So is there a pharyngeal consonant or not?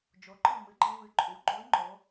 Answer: no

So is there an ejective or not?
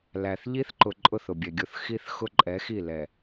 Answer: yes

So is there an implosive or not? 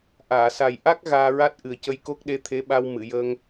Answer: yes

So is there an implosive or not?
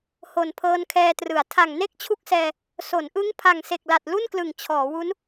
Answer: no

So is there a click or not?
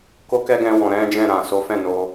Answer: no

